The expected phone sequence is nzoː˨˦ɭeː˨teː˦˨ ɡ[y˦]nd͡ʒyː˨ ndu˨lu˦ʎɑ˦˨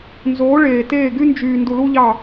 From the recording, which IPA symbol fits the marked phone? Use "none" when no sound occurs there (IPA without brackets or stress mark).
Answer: y˦